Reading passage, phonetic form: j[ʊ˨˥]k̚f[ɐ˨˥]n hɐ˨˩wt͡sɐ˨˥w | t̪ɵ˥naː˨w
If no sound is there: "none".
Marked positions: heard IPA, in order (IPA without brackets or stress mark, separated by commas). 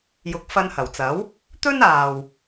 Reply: ʊ˨˥, ɐ˧